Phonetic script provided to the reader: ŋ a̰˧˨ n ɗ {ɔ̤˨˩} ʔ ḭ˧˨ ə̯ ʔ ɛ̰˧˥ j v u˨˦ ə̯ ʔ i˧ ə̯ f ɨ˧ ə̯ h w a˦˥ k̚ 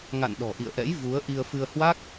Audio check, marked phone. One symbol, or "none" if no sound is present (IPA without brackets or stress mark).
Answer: ɔ̤˨˩